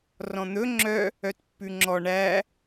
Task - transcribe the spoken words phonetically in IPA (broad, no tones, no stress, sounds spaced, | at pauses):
r ɔ̃ n̪ ɵ ŋ͡ǁ œ | œ t pː ʉ ŋ͡ǁ ɔ ɳ æ